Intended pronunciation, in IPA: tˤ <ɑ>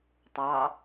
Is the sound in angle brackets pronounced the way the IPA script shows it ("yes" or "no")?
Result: yes